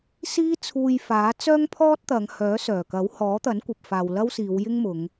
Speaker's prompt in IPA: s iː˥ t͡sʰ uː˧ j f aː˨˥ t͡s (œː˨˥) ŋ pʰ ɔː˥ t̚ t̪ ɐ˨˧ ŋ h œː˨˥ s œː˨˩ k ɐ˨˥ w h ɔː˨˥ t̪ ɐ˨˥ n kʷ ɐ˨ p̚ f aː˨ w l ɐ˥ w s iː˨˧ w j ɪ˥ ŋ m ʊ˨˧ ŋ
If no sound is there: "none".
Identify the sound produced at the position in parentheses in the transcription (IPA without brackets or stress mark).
œː˥